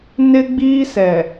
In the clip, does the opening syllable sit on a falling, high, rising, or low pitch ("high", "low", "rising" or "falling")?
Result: high